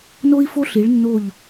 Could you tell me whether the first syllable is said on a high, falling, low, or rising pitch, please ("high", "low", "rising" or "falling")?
high